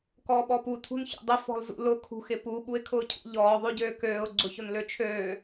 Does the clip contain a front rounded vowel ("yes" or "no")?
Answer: yes